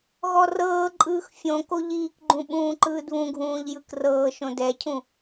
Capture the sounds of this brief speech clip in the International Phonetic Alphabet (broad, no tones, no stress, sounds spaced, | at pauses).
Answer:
ɣ ɔ r ɤː ǃʼ ɯː x fʲ õ k o ʎ iː k ɡ͡ǃ ũ ɓ ũː ǃ ɯː d β ũ ɡʱ ũː ʎ j ɯ k r ɤː ʃ õ d ɛ cʰ ũ